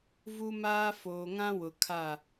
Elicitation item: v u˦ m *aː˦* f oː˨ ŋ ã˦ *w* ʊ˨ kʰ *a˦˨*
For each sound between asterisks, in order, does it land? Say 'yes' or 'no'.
yes, yes, yes

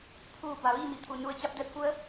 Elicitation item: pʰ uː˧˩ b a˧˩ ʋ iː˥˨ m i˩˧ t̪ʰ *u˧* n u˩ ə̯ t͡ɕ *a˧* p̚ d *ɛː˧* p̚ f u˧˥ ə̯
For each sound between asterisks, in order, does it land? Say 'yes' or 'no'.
no, yes, yes

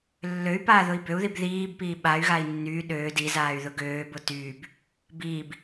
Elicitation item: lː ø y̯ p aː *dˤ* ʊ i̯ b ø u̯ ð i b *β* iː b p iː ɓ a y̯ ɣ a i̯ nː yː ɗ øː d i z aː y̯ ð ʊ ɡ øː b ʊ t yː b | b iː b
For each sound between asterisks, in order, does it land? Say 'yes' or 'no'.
no, no

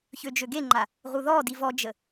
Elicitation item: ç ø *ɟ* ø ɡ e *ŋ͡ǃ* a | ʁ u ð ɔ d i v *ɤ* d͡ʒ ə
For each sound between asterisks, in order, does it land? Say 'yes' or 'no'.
no, yes, no

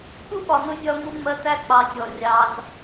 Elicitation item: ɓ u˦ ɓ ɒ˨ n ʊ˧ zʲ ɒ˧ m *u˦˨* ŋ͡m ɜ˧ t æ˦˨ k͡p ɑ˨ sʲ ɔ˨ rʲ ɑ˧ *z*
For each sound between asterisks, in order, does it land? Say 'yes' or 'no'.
no, yes

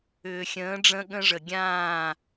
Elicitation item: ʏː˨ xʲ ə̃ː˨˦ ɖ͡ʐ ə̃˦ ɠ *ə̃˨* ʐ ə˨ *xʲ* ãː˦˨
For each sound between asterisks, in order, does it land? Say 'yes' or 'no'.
no, no

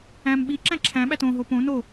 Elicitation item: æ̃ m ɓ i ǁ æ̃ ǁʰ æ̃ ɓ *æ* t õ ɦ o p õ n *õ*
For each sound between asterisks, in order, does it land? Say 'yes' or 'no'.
yes, no

